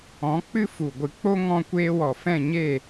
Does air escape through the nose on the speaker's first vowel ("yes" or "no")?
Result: yes